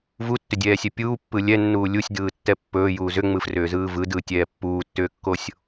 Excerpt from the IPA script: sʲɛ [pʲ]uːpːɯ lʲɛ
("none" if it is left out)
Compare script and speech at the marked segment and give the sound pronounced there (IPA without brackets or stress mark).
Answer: pʲ